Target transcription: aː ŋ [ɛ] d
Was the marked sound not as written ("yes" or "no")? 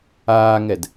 no